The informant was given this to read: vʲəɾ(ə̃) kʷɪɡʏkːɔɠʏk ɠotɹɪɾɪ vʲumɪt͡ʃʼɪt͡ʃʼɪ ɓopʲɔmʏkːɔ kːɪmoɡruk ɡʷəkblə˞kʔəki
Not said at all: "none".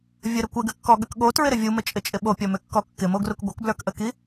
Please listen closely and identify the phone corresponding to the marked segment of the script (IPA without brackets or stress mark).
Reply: ə